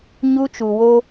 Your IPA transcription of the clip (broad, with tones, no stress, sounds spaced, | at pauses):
ɲ u˦ t͡ʃ u˨ w o˦